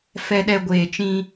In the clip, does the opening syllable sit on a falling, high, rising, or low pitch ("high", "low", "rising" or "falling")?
low